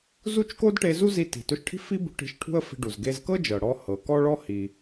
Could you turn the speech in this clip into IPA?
zu˥t͡ʃ ko˥dʈe˧zu˥ zi˧ti̤˩to˧ʃʈʰi̤˥ fi˥bṳ˧ʈ i̤˧ʃʈʰṳ˥ə̯fi̤˧ɖu˩z ɡe˧zkɤ˥d͡ʒɤ˩ ɽɔ˧ hɤ˩ kɔ˥ɭɔ˥ hi˩

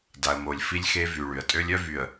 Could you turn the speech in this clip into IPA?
da˨ə̯mo˨lʲ fi˦lʲxe˦vy˨ ɭy˨ə̯tʼø˦lʲœ˦vy˨ə̯

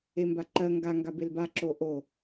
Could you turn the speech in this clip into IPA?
embaǃɜ ŋɡa ŋɡabelba ǁoʔo

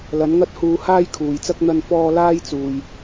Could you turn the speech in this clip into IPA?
lɐ˨˥nŋɐ˥t̚ huː˧haː˥jkʰuː˨jt͡sɐ˥k̚ n̪ɐ˧nfɔː˧ laː˥jt͡suː˧j

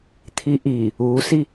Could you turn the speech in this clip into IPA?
t̪ʰiʔi | usi

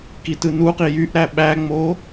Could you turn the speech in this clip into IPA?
kitɯnuqi jyʔ ɾæɓæŋ͡mo

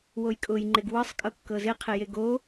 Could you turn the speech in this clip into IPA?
wojkʼʊj ŋ͡ǃeɡwɤsˤ kʼɤkːɤzɪ qʰɪjeɡo

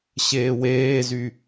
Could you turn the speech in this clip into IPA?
ɕeːweːzy

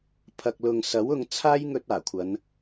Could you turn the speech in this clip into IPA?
pʰɐ˨k̚lʊ˨ŋ sɐ˨˥wʊ˧ŋ t͡sʰaː˥jŋɵ˧t̚ aː˨˩kʷʰɐ˨˧n

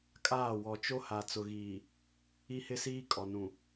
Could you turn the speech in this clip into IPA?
kʼaː˦˨wɔ˨ t͡ʃo˦ha˨ t͡sʊ˨ɣiː˨ | i˦hɪ˦siː˦ kʼɔ˨nũ˨

